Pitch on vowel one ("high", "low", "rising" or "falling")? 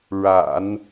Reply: low